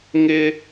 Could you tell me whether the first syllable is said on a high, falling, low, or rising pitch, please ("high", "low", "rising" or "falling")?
high